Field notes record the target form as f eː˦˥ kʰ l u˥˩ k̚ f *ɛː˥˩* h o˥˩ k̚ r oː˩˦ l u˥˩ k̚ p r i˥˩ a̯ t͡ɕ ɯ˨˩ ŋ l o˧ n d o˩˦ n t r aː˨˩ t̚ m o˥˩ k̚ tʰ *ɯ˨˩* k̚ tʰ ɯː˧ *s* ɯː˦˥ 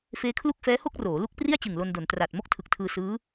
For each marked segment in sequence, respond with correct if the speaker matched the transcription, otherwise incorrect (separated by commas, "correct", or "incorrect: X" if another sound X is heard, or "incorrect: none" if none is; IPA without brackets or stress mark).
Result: incorrect: ɛː˦˥, correct, correct